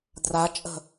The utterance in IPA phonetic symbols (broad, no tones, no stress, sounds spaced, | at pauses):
d r a t͡ʃʼ ə̤